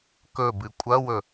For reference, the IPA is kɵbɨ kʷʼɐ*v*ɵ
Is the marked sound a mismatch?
yes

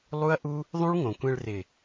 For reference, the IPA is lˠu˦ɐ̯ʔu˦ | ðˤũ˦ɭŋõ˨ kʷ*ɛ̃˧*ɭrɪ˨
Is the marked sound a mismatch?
no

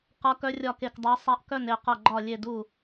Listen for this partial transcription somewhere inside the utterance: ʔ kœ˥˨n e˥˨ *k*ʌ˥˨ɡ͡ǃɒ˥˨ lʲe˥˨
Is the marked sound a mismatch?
yes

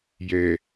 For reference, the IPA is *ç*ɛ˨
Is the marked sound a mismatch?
yes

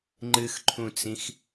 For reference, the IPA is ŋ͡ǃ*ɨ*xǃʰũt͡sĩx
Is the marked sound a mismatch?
no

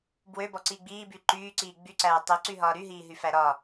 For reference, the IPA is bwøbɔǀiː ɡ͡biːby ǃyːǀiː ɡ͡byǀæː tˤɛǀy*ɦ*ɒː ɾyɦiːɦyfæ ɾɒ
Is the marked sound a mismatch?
no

